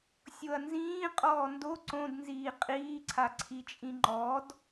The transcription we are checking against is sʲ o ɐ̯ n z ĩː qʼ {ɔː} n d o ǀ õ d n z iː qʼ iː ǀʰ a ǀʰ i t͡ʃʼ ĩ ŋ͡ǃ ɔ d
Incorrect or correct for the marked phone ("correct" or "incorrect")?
correct